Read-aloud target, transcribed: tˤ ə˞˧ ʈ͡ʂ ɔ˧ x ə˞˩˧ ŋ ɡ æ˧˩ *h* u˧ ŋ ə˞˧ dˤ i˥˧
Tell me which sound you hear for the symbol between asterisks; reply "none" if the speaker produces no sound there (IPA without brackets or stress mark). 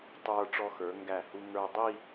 h